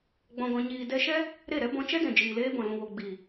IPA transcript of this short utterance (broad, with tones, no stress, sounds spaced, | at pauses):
ɡ͡b ɔ̃˨ ɡ ɔ̃˨ ɲ iː˨ d ɛ˧ ʃ ɛ˦ | ɾ e˦˨ ɾ ɛ˦ b ɔ̃˧ t͡ʃ ɛ˦ d ɛ̃˨ d͡ʒ iː˨ l eː˧ b ɔ̃˨ l ũ˨ w o˨ ɡ͡b iː˨